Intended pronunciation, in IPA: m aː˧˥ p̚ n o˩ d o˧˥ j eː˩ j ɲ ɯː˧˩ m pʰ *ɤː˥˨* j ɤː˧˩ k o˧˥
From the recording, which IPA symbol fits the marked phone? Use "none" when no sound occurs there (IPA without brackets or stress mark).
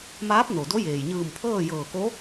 ɤː˥˨